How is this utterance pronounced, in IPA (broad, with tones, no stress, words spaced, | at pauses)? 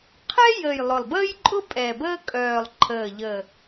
qʰɛ˥jə˨˩j lˠʊ˨˩lˠbəː˥jǃʼʊ˥ pʼɛ˨˩bəː˥kʼœː˨˩lˠ ǃʰəː˨˩ʎə˨˩